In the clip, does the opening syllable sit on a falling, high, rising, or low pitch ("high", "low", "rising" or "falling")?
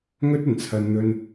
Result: high